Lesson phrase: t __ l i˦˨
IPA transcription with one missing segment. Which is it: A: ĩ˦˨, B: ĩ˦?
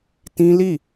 B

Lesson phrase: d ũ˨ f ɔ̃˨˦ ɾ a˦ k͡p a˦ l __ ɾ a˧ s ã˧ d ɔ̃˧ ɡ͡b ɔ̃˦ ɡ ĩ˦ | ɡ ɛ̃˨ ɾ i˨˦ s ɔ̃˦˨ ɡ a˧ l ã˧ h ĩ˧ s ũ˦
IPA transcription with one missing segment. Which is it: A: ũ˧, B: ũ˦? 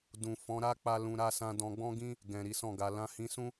A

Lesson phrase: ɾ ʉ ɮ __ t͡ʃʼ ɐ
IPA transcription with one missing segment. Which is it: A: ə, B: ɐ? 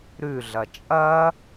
B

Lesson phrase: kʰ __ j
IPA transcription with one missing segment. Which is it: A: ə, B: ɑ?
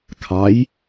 B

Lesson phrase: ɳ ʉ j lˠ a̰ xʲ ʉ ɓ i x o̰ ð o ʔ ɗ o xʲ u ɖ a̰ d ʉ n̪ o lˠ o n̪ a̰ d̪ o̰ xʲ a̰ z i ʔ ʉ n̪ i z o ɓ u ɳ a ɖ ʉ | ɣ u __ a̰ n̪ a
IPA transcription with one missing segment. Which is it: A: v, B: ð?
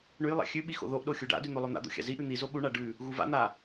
A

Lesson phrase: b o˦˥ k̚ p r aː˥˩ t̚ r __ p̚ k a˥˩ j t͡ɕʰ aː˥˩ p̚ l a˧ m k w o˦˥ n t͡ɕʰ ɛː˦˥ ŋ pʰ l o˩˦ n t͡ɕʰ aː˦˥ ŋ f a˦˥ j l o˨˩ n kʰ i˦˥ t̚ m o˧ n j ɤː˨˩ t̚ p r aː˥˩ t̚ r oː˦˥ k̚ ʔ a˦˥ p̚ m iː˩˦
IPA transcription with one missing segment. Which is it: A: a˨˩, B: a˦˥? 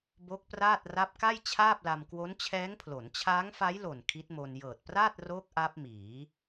B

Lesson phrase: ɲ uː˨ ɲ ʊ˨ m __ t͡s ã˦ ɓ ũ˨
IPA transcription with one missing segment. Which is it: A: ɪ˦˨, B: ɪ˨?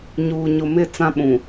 A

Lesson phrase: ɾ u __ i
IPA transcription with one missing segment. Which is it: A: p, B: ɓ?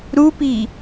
A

